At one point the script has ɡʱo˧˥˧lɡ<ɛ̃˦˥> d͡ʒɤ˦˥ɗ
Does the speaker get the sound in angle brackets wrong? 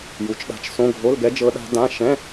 yes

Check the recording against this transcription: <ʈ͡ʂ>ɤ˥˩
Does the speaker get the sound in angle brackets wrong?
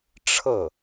yes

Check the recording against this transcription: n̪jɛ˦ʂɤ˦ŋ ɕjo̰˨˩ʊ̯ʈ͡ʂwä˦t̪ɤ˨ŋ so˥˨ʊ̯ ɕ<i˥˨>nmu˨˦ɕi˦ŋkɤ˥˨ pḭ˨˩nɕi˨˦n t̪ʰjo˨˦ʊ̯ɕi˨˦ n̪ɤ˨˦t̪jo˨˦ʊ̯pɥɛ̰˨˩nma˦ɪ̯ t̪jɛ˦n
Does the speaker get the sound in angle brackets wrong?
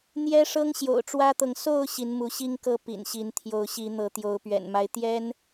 yes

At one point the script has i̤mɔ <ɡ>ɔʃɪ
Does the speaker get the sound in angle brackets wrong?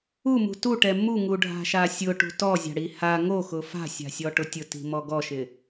no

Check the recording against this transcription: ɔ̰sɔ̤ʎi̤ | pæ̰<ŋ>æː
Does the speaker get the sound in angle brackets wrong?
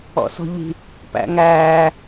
no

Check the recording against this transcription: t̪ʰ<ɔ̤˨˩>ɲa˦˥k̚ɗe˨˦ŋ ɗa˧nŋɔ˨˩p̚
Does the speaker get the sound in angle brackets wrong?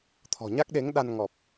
no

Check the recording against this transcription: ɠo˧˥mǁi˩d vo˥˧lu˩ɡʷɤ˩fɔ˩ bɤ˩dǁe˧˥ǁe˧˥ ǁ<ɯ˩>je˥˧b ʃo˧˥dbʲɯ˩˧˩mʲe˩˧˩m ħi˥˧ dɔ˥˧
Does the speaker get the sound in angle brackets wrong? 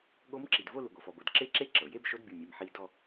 yes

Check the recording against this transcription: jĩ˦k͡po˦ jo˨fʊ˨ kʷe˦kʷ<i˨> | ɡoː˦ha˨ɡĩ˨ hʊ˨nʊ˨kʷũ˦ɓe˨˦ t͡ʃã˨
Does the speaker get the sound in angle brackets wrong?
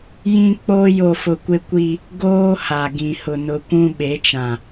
yes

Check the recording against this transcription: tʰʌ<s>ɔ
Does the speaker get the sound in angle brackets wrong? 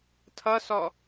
no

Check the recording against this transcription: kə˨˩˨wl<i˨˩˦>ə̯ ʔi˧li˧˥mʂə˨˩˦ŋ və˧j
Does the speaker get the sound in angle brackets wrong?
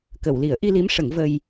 no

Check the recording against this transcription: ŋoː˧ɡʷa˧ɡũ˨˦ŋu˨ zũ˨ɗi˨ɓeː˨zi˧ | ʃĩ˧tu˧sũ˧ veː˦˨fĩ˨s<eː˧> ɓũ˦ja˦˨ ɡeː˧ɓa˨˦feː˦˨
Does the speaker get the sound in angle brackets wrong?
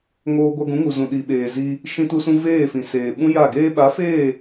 yes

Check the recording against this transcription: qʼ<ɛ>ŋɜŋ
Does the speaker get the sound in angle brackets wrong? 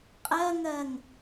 yes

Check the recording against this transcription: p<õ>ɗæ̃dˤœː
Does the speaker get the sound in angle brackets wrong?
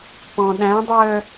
yes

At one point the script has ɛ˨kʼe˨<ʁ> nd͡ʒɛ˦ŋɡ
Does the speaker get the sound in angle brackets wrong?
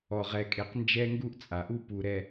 yes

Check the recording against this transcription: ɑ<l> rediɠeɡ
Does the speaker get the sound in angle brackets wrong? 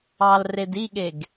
no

